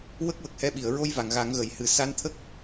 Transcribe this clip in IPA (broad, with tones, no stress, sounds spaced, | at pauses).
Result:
w ə˦˥ k̚ w ə˨˩ k̚ h ɛ˧ ɓ i˨˩˨ ə̯ ɹ o˧ j v a˨˩˨ ŋ ɣ a˨˩˦ ŋ ɣ ə˨˩˨ j h ɨ˨˩ s a˧˥ n t̪ʰ ə˦˥ k̚